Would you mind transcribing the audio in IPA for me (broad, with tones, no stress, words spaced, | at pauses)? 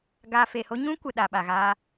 ɡaː˧ fe˨ho˦ ɲũ˦kʷə˨ ɗa˨ɓa˨ɣaː˧